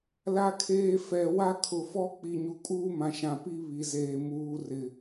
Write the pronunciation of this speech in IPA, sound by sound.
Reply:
la˨kʰeː˨ fɛ˨ wa˦kʰʊ˨fɔ˦ k͡pi˨ɲu˨kʼuː˦mã˨ ʃã˨pi˦ βi˨zeː˨ muː˨rɪ˨

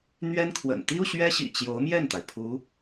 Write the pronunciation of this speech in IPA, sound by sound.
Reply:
n̪ɥɛ˥nkʰwə̰˨˩n t̪i˥u˨ ɕɥɛ˥ɕḭ˨˩ t͡ɕjo˧˥ʊ̯mjɛ˥˩nt̪a˩ɪ̯ pʰu˧˥

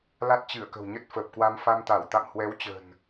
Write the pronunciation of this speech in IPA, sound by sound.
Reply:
la˦˥t̚t͡ɕɨ˧˩ə̯kə̤˨˩w ɲə˦˥t̚fəː˨˩p̚kwa˧m fa˧mt̪a˧˩w t̪a̰˧˨mhwɛ˨˦wt͡ɕə̤˨˩n

